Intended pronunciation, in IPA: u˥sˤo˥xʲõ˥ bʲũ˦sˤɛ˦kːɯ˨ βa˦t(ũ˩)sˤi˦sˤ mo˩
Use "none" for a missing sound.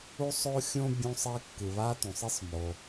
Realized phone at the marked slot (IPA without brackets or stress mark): ũ˩